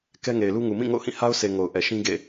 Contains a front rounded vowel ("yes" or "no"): no